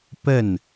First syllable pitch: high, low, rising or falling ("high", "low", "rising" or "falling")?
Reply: falling